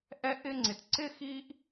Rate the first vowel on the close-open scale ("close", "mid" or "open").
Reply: mid